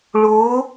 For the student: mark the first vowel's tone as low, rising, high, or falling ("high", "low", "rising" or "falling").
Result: rising